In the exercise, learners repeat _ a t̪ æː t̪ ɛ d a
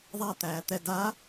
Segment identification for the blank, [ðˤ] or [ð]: ðˤ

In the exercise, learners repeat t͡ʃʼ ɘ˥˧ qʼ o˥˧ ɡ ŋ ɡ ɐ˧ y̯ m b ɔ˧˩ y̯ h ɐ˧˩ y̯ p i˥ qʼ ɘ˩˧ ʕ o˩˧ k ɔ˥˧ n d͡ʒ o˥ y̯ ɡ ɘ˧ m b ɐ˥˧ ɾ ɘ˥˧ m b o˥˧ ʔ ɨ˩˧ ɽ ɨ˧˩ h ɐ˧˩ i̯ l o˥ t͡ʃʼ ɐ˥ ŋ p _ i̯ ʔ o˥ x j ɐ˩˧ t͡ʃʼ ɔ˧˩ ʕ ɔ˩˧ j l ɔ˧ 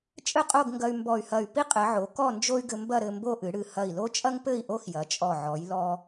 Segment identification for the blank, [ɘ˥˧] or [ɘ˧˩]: ɘ˥˧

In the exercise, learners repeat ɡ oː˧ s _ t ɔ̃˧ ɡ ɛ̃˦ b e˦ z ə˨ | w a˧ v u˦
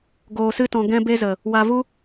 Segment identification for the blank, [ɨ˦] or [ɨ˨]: ɨ˦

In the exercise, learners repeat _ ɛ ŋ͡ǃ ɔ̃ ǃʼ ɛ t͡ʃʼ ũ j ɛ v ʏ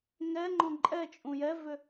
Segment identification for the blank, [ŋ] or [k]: ŋ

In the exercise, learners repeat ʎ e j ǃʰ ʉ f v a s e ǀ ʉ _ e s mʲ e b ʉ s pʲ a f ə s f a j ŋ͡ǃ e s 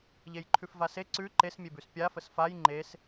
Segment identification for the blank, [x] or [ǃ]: ǃ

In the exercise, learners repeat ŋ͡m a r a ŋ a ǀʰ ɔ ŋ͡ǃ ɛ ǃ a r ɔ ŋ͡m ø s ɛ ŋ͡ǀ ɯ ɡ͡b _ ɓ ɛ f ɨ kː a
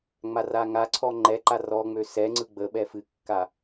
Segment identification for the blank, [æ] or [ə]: ə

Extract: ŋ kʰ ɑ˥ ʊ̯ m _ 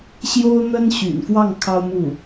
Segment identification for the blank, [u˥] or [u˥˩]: u˥˩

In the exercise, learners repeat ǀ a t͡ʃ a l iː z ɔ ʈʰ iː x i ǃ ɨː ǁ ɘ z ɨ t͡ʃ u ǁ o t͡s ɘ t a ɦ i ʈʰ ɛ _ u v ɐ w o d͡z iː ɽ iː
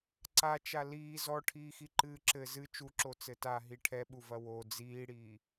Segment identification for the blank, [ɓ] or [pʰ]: ɓ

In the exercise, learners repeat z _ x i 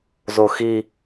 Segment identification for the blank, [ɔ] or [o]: o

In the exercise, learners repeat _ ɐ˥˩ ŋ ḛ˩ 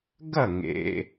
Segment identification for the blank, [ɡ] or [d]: ɡ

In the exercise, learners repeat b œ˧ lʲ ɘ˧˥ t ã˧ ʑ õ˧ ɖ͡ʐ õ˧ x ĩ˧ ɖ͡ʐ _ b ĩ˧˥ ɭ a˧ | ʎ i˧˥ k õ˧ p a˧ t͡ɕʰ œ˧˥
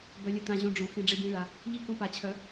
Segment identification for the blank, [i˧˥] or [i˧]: i˧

